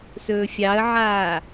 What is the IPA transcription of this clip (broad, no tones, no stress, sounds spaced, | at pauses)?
s ɵː fʲ ɑ ə̯ ʕ aː